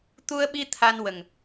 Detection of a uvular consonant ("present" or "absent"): absent